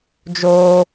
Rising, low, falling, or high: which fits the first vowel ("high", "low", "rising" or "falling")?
high